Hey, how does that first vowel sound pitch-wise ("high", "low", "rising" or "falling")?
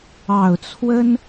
low